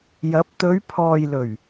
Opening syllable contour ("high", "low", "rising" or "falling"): rising